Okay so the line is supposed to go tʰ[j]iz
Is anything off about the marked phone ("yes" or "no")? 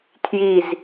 no